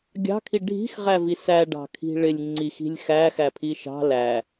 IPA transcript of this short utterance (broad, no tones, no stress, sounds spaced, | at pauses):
ɡʲ ɑ̤ kʰ i ɖʱ i̤ x ʁ æ v i s æ ɖ ɑ̤ kʰ i̤ ɭ ɪ lʲ ŋ͡ǀ i x i̤ lʲ x æ x æ pʰ i ʃ ɑ̤ l æ